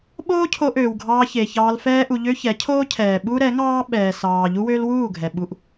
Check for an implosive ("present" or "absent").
present